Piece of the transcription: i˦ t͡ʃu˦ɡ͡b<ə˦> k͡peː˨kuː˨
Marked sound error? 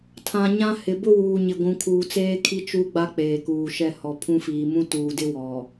yes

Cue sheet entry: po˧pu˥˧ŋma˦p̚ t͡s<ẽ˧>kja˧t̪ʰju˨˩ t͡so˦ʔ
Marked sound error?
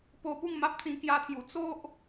yes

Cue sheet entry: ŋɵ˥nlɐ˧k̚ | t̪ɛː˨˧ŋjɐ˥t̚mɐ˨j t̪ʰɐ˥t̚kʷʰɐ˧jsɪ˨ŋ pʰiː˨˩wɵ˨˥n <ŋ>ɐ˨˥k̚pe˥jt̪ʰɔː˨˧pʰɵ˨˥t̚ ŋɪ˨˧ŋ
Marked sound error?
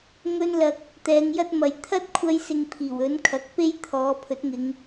yes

